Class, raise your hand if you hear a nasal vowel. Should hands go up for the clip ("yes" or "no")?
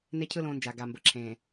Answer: yes